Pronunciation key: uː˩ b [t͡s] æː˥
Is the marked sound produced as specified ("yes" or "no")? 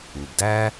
no